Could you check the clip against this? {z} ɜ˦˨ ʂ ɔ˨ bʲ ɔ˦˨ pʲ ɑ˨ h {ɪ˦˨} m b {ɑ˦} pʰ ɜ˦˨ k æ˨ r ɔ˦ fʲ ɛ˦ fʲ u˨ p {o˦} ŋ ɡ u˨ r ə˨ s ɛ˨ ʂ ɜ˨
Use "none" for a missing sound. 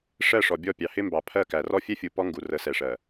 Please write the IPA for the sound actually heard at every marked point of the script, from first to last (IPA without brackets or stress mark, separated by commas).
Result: ʂ, ɪ˦, ɑ˨, ɔ˦